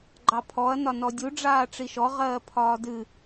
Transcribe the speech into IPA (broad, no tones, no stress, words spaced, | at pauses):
ɡ͡ǃɑpʰɔɐ̯ nɒnɔdʲu ɖ͡ʐaːʈ͡ʂiʃɔ ʁɜːpʰɒːdɨ